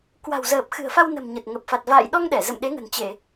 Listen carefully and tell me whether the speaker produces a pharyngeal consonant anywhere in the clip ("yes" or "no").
no